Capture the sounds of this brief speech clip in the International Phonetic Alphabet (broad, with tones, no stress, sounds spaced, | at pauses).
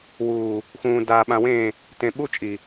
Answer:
w uː˨ | x ũː˨ d aː˨ ɓ ã˨ w ẽː˦˨ | t ẽ˨ ɓ u˦ t͡ʃʼ i˨